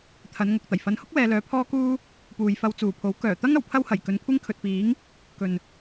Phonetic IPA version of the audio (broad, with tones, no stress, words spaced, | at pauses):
t̪ʰɐ˨˧n ŋʊ˨k̚t̪ɐ˨˩j fɐ˨˧nhʊ˥k̚wɛː˨ lœː˧pʰɔː˥kuː˥ | puː˨jfɐ˧wt͡suː˨˩pʰo˨˥w kœː˨˩t̪ɐ˥ŋ ɐ˨˩wpʰɐ˥whɐ˨˩j kɵ˨˧nkʷʰɪ˥ŋkʰɵ˨t̚piː˨˥ŋ | kɵ˨n